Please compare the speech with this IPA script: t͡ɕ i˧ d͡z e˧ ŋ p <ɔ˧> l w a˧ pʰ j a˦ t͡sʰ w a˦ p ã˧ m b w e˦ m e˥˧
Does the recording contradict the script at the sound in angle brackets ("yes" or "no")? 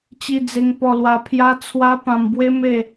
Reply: no